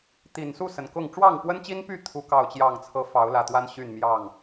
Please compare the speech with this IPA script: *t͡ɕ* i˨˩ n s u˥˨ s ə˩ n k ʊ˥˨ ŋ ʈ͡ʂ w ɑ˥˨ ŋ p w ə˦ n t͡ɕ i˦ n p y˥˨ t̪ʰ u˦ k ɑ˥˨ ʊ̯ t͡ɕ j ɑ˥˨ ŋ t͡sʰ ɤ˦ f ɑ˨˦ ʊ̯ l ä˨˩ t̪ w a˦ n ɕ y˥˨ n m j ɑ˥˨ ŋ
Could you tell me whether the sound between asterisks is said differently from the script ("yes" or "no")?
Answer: yes